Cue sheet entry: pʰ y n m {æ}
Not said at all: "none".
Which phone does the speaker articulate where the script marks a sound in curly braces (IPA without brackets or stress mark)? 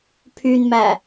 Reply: æ